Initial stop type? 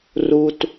plain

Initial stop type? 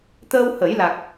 plain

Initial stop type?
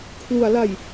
aspirated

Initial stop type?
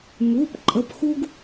plain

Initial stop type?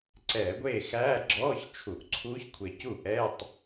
click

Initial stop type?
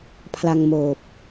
aspirated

